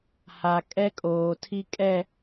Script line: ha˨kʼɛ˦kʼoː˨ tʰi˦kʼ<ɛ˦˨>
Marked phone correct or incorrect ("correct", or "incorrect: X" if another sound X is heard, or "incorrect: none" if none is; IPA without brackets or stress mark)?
correct